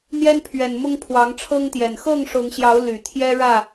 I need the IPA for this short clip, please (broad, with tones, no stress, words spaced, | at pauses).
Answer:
n̪jɛ˦npʰɥɛ˨˩nmʊ˦ŋ pʰwɑ˨˦ŋʈ͡ʂʰɤ˦ŋt̪jɛ˨˩n xɤ˥˨ŋʂʊ˨˦ŋɕjɑ˨˦ʊ̯ ly˨˩t̪ʰjɛ˦ɻä˥˨